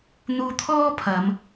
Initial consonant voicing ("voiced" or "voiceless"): voiced